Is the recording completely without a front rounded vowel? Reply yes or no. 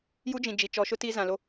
yes